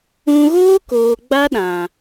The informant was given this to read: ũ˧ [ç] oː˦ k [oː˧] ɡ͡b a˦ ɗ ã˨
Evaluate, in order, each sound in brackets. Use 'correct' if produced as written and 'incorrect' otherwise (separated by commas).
incorrect, incorrect